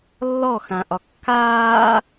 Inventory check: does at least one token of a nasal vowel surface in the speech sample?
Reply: yes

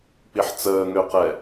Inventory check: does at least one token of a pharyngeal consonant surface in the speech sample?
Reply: yes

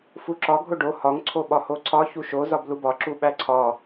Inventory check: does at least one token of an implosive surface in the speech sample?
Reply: yes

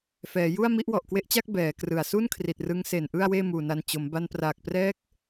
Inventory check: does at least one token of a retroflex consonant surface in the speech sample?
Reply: no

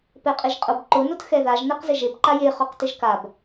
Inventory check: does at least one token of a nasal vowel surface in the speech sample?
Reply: no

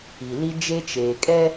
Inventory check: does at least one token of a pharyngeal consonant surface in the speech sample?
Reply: no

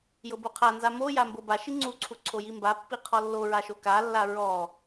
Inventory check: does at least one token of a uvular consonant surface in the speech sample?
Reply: yes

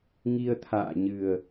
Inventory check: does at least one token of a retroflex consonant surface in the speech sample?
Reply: no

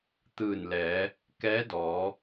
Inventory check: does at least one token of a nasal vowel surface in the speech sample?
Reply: no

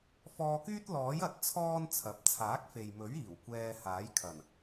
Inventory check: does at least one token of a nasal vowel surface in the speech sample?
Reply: no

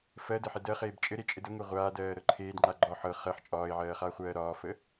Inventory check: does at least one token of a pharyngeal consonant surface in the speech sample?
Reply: yes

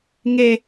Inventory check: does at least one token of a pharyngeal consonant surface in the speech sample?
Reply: no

